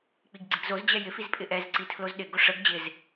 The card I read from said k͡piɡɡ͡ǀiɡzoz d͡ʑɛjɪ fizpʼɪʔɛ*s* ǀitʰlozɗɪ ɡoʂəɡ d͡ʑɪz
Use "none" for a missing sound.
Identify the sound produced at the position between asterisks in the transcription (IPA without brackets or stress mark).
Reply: z